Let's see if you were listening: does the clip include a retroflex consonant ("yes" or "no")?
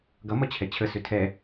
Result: no